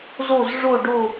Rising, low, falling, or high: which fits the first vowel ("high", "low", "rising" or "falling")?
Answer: falling